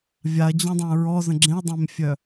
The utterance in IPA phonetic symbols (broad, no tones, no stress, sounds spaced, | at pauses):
vʲ a ɐ̯ d͡ʑ œ̃ dˤ ã ɹ ɔ z ə̃ ɡ͡ǁ ẽ ɐ̯ dˤ ẽ m fʲ œ